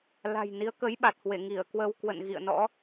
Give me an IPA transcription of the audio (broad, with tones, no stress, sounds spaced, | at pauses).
l a̤˨˩ j n i˨˦ ə̯ k ə˨˦ j ɓ a˨˩ t̚ h w e˧˩ ŋ i˧˩ ə̯ k w ə˧ w k w ə̰˧˨ n ɣ ḭ˧˨ ə̯ n ɔ̰˧˥